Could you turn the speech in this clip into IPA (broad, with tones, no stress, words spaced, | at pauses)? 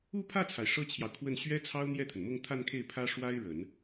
u˥˧pʰä˥˩t͡sʰa˩ɪ̯ ʂɤ˥t͡ɕʰjɑ˨ʊ̯kʰwə˥˩n ɕɥɛ˥t͡sʰɑ˥ʊ̯ n̪jɛ˥˩t̪ʰə˩nmʊ˥˧ŋ t̪ʰa˥˧nkʰe˥˩ɪ̯ pʰä˥ ʂwa˥ɪ̯ɻə˨˩˦n